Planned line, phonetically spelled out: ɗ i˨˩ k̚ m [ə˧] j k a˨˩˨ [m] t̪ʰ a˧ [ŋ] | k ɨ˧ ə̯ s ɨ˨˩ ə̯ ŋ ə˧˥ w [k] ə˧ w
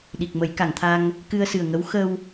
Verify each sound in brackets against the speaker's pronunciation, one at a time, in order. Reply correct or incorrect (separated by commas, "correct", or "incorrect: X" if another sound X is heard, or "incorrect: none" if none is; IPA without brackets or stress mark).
incorrect: ə˨˩˦, incorrect: ŋ, correct, incorrect: x